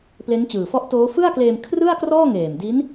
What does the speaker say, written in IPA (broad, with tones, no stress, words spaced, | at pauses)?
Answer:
ple˦˥nt͡ɕɯː˨˩ fɔ˦˥ʔtoː˦˥ fɯ˥˩a̯kleː˧m kʰrɯ˥˩a̯krɔː˥˩ŋeː˨˩mdi˦˥n